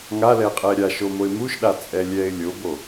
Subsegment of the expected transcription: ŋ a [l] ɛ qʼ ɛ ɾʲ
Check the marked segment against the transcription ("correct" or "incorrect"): correct